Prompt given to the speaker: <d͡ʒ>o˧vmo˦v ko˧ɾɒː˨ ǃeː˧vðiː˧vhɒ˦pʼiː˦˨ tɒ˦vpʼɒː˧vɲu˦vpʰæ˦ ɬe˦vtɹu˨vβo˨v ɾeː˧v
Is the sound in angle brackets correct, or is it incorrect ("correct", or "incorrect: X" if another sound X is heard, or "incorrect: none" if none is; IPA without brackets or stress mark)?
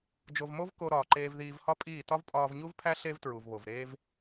correct